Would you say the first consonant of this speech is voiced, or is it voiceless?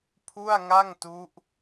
voiceless